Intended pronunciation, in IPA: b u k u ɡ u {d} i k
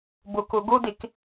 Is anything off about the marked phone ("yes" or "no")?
no